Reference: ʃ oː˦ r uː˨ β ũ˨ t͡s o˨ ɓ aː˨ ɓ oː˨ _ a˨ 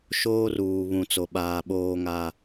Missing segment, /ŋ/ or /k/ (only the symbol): ŋ